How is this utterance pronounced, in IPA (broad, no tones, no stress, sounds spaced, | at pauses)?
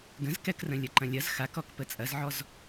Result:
ɡ ə̃ z k ɛ k r ə̃ lʲ ɐ ǃ ɐ̃ lʲ ɐ z x a k ɔ k p ə t͡sʼ ɐ z ʕ ɔ z